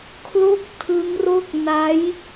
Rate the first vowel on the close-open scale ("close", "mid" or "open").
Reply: mid